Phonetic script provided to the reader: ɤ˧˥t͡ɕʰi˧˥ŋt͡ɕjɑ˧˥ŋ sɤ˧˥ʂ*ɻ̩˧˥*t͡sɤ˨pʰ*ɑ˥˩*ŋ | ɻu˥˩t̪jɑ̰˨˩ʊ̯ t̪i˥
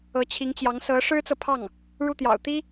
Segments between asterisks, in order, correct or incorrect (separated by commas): incorrect, correct